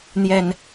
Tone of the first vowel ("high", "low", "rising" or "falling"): low